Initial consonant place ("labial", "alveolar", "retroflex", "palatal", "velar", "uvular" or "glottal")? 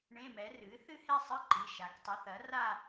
retroflex